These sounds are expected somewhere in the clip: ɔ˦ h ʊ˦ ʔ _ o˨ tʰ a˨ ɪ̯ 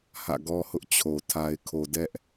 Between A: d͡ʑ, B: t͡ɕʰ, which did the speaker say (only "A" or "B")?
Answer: B